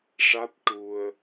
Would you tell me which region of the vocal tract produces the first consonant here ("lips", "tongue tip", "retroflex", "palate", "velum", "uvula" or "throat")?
retroflex